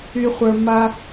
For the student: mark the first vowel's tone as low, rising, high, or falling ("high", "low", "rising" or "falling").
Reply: low